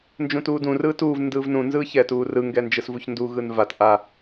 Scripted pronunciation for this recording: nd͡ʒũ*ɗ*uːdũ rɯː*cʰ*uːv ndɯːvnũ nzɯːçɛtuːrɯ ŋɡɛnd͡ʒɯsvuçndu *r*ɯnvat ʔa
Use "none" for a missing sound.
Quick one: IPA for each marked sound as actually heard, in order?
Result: t, t, ɣ

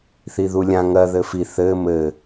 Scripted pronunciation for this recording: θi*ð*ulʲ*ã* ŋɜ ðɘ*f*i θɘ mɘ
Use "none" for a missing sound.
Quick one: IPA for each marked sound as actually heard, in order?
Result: ð, ã, f

